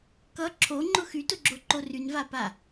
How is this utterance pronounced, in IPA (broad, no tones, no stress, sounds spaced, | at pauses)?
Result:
k ʌ ǁʰ o ŋ͡ǃ ʊ x y t ʊ ɡ͡ǁ o ǃ o r y n v a p a